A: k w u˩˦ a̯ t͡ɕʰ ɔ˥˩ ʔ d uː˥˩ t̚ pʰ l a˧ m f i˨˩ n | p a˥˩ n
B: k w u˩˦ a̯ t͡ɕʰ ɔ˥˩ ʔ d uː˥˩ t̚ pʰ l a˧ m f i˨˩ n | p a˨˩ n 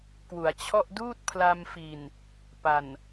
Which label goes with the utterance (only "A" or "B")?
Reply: B